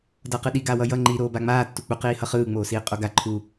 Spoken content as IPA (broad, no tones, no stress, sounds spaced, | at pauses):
d ʌ q ɯ ɗ i ɡ aː w ʌ j ʌ ŋ͡ǃ i ɾ oː b a ŋ͡m aː tː u k͡p u q iː h ʌ χ ɯː ŋ͡m oː s iː qʼ o ɡ a ǃʰ u